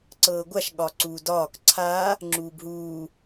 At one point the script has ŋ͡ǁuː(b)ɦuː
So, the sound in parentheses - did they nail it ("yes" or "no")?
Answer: yes